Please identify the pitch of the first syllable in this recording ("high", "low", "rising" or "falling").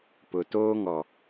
low